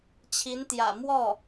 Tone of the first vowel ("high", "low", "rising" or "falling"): rising